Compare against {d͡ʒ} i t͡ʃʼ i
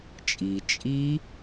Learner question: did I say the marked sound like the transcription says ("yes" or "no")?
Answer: no